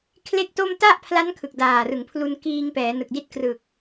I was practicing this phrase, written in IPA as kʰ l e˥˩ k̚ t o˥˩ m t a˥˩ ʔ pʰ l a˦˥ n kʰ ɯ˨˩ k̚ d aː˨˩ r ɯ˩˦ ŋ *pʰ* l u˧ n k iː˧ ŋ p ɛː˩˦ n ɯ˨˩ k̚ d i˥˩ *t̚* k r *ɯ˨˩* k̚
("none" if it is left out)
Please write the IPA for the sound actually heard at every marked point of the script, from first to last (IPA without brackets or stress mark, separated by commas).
pʰ, t̚, ɯ˨˩